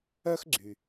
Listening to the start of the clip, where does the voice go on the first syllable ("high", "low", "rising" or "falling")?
high